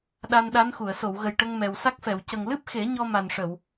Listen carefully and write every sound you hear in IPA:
ɗ a˧ n ɗ a˧˥ n x u˨˩˨ ə̯ s o˨˩˨ w ɣ ə˨˩ j ʈ ə˧ ŋ m ɛ˨˩ w s a˦˥ k̚ f ɛ˨˩˨ w c ə˨˩ ŋ l ɨ˦˥ p̚ x e˨˩˦ ɲ ɔ˧ m a˨˩ n ʂ ə˨˩˨ w

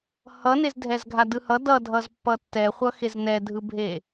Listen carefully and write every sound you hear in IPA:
h ʌ n e z dʱ ɛ z ɡʱ a d ɯ h ʌ d ʌ dʱ ʌ z pː ʌ tː ɛ χʷ ʌ x e z n ɛ dʱ ɯ bʱ e

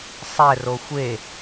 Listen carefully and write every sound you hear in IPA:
sˤ ɛ r o xʷ e

